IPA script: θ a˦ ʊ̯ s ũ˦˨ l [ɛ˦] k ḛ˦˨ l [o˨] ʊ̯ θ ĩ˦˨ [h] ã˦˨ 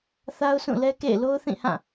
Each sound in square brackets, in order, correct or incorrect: correct, incorrect: o˦, correct

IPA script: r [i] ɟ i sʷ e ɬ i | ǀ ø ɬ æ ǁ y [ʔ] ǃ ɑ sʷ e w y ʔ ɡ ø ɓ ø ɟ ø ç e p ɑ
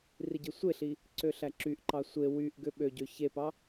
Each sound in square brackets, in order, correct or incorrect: correct, correct

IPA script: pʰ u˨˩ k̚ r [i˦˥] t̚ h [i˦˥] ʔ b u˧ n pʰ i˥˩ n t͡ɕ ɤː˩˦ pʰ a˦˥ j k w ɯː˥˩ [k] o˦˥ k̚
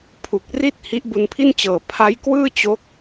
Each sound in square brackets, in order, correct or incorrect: incorrect: i˥˩, correct, incorrect: t͡ɕ

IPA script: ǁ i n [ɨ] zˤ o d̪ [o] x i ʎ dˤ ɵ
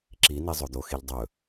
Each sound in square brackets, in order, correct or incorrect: incorrect: i, correct

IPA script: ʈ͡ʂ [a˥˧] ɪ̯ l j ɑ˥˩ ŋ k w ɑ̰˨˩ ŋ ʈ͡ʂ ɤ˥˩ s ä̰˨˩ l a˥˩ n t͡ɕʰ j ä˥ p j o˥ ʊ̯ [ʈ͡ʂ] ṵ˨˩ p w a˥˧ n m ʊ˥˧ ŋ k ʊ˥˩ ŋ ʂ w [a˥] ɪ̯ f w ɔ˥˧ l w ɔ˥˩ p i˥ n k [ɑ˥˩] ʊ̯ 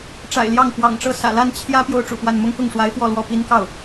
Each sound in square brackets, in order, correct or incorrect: incorrect: a̰˨˩, correct, incorrect: a˧˥, correct

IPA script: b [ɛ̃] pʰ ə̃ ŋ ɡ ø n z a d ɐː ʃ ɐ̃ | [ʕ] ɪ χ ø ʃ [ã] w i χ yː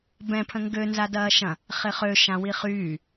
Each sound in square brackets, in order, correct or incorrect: correct, incorrect: χ, correct

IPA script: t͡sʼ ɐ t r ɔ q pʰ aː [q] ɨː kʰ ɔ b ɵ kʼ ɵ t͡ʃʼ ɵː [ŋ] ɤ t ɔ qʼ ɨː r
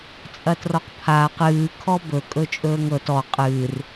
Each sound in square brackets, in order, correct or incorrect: correct, correct

